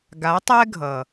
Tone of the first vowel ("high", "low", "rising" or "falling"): rising